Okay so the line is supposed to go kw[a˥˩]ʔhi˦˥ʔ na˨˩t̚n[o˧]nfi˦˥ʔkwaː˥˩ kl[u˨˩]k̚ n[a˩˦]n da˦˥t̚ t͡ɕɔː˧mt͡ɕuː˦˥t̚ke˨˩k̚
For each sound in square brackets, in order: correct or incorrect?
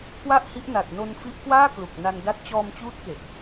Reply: correct, correct, correct, incorrect

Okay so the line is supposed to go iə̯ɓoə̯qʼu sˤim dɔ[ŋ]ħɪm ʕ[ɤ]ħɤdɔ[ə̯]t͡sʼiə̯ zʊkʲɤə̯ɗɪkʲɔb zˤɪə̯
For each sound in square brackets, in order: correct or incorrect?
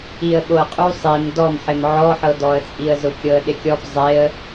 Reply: incorrect, incorrect, correct

